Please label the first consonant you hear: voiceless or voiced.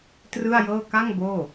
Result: voiceless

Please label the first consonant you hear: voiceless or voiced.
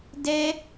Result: voiced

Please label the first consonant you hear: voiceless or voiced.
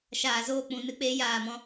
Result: voiceless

